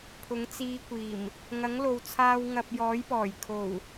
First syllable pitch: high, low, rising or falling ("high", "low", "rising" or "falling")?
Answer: rising